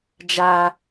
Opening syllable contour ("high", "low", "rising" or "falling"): low